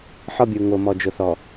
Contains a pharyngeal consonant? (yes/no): yes